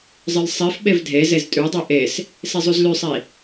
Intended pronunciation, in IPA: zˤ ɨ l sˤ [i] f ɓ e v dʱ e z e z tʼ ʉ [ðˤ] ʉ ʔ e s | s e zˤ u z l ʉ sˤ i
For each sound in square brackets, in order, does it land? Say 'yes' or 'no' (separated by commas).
yes, no